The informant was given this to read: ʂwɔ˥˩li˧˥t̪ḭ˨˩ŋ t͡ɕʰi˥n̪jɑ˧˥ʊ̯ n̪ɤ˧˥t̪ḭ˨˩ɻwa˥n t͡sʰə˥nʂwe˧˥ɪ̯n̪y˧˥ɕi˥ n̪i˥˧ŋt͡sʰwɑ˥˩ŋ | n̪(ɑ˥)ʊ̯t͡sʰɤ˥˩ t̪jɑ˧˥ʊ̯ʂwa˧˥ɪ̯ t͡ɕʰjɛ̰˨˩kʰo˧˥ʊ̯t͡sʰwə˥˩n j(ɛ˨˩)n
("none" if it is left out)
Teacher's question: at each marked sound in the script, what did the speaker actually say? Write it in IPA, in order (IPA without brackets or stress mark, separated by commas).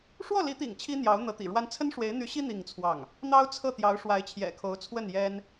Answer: ɑ˥, ɛ˥